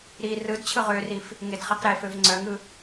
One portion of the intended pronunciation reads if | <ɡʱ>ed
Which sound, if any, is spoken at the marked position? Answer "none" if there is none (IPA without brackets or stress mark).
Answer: ŋ